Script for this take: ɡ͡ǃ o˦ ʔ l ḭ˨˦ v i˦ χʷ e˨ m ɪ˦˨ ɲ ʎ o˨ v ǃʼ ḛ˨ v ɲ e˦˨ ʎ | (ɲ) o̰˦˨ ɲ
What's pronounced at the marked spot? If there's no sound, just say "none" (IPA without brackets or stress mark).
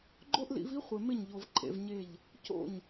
c